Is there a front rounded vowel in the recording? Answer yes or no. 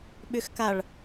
yes